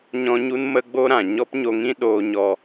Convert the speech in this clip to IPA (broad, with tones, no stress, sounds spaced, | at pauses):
ɲ ɔ̃˦ ɲ u˦ n m ə˦ ɡ͡b o˦ ɾ ã˨ ɲ ɔ˦ p ɲ o˧ ŋ ĩ˦ ɗ oː˧ ɲ ɔ˧